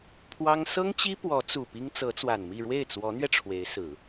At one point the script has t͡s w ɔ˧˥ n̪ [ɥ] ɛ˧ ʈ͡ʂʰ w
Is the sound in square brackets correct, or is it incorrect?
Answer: correct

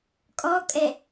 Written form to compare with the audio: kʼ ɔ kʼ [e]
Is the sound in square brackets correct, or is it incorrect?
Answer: incorrect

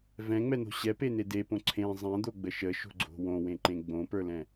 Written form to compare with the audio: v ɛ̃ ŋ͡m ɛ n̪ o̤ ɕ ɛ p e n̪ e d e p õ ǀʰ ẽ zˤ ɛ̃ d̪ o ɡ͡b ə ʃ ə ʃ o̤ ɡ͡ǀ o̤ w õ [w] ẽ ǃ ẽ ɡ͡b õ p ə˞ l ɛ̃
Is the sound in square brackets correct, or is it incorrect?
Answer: correct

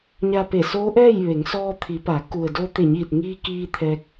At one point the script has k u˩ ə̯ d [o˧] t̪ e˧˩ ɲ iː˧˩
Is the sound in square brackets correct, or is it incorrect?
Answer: correct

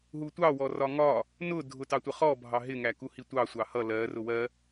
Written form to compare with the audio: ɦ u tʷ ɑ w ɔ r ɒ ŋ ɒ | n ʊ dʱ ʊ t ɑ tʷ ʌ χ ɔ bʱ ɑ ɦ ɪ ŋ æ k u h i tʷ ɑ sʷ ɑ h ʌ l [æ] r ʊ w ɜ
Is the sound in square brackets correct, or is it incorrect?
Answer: incorrect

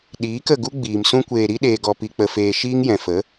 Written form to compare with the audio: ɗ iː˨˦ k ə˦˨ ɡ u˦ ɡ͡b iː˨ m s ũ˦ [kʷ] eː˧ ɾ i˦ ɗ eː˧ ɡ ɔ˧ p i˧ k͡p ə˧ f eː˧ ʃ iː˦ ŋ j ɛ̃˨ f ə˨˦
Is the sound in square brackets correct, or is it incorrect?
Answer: correct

